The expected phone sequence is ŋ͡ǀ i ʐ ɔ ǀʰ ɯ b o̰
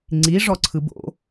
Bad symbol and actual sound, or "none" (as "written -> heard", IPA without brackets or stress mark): none